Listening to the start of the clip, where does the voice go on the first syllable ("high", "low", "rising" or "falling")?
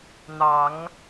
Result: low